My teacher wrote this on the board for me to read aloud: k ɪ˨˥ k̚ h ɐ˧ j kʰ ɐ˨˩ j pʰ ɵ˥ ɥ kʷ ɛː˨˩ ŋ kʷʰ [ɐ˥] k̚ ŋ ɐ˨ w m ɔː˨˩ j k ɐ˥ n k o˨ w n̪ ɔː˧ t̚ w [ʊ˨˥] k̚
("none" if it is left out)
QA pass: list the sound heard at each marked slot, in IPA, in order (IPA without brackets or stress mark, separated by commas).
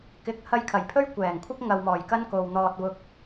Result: ɐ˥, ʊ˧